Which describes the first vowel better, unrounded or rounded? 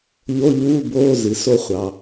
rounded